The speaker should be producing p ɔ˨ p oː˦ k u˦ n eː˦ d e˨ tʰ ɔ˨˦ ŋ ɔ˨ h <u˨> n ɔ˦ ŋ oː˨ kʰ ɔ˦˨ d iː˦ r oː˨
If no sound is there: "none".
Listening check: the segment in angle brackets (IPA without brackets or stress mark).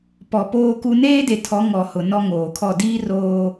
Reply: ʊ˨